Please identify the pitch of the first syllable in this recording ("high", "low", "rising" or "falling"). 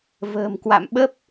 low